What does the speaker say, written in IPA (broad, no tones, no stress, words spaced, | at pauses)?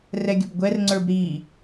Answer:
rɛɡʲɵbɡʷɛrŋ͡ǀə˞b ɾi